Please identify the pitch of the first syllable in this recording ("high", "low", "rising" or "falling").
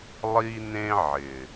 high